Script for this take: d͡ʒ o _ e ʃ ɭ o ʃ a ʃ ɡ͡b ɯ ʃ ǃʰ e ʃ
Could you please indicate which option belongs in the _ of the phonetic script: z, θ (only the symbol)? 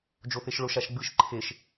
θ